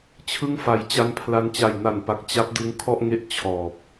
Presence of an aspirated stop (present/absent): present